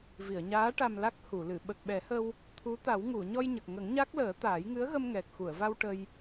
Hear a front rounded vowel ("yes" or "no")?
no